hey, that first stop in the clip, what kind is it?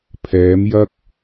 aspirated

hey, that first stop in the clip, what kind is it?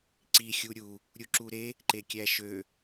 click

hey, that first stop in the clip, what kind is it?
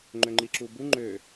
click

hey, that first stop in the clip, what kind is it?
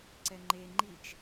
click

